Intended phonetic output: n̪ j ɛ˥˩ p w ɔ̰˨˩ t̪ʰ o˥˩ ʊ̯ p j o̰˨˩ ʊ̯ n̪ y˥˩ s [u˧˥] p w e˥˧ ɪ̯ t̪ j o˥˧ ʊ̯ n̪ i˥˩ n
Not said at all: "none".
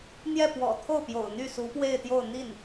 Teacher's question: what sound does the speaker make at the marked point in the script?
u˧˥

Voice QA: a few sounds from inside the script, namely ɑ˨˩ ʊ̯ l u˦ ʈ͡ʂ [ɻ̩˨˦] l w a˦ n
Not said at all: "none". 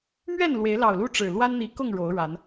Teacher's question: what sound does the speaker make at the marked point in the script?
ɻ̩˨˩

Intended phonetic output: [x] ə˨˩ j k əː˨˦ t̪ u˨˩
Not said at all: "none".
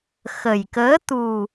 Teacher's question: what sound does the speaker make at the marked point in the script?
x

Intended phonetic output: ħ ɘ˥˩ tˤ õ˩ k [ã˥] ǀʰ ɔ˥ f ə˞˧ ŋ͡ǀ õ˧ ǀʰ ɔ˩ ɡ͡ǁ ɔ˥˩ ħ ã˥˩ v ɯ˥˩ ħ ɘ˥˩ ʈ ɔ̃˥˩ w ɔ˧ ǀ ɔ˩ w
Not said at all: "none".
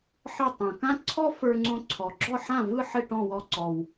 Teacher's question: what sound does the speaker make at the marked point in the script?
ã˥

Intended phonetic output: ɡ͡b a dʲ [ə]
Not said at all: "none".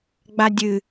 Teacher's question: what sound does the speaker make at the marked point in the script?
ɨ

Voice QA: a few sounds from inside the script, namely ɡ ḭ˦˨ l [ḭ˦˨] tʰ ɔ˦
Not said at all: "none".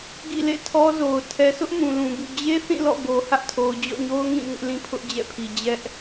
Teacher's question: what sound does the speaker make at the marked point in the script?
ḛ˦˨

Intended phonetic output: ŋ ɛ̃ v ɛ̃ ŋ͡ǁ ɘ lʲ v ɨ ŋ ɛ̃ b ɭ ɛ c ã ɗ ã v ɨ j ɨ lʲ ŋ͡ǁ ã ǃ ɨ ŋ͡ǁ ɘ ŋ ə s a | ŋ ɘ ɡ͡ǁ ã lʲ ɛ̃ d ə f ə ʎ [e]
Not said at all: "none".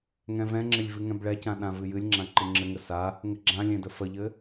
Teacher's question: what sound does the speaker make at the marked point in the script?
ɘ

